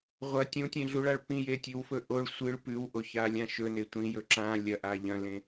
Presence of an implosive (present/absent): absent